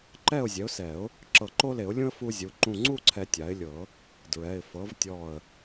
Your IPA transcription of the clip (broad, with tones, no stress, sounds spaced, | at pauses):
ǃ ɛ˥˨ ʊ̯ zʲ ɛ˩˥ ʊ̯ s ɛ˨˩˦ ʊ̯ | ǁ ɤ˧˩ ǃ o˦ l e˨˩˦ ʊ̯ lʲ ũ˦ ə̯ f u˦ zʲ u˩˧˩ ǃ ũ˧˩ ŋ͡ǀ u˥˨ ǀʰ ɛ˨˩˦ tʲ a˩˥ ɪ̯ lʲ ɤ˨˩˦ | d ɹ ɛ˩˧˩ ɪ̯ f ɤ˩˥ v tʲ ɔ˧˩ ə̯